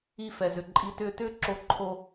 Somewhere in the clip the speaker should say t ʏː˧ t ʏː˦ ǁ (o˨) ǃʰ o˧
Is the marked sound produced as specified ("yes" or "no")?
no